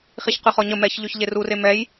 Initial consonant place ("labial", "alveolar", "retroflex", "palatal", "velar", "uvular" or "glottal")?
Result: uvular